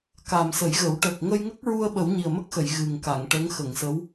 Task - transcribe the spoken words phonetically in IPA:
ka˨˩msə˨˩˦jɣə˨˩˦w ʈə˨˩k̚ŋə˧jŋə˦˥k̚ɹu˧ə̯ ɓə˨˩˦wɲi˨˩ə̯mə˦˥k̚xə˨˩˨j ɣɨ˨˩ŋka˨˩˨ŋʈə˧˥ŋ xə˨˩˨ŋsə˧˥w

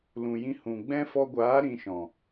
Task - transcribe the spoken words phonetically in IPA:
lũ˨jĩ˧ hũ˨ɡ͡bɛ̃˦ fɔ˧ɡʷaː˨˦ ɾĩ˧ʃɔ̃˨

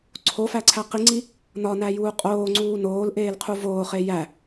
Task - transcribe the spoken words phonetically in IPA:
ǀʰofæǀʰæ qiŋ͡ǀi | nɒnæjuː qʼoːŋ͡ǀuː noːlʔeːlqʰu voːχe jæ

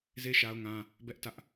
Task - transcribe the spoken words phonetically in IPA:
ze˦ ʃa˦ʊ̯ŋã˦ | bɛ˦ʔ tä˦ʔ

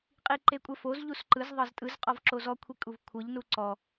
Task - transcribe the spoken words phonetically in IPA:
qʼiǃekʷʼɛfoz ʎusǃɯz ðˤɤztʼɯz qʼɔvǁozɔ kʷʰikʼuvkʷʰɤʎ nuǀɔ

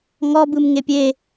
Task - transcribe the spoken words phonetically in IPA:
ŋɔbɯm ŋepʲe

